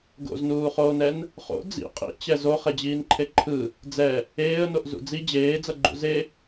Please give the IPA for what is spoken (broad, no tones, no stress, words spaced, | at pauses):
ɡo̰znuːχoːnɛn | χo̰ d͡zḭ qʼḭt͡ɕɛ zoχed͡ʑiːnǃʰe ǃʰɯ | d͡zɛ | eːə̯noʔ zṵd͡zi d͡ʑeːd͡zʌɡ͡ǃṵ ze